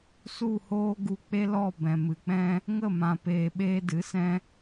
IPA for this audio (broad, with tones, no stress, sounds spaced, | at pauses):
s u˦˨ h oː˦ ɡ u˧ k͡p e˦ l ɔ˦˨ b ɛ̃˨ m ɨ˨ k͡p ɛ̃˦ | ŋ ə˦˨ m ã˨ p eː˨ ɓ eː˧ d ɨ˨˦ s ɛ̃˧